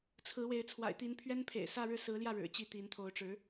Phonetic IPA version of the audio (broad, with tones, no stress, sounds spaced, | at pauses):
t͡sʰ ɹ̩˧˥ w e˧˥ ɪ̯ t͡sʰ w a̰˨˩ ɪ̯ t̪ i˧˥ n pʰ ɥ ɛ˥ n pʰ ḛ˨˩ ɪ̯ s ä˥˧ ɻ ɻ̩˥˩ s ɹ̩˧˥ l j ä˥˩ ɻ ɻ̩˨˩ t͡ɕ i˥˩ t̪ i˧˥ n t̪ʰ o˧˥ ʊ̯ ʈ͡ʂ ɻ̩˧˥